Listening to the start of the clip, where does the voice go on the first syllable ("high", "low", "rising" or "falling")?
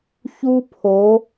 high